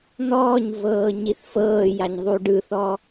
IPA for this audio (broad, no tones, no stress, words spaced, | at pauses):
n̪ɔːɲvɤː ɲiθfɤːjaɲ ðˤuɖɯθɔ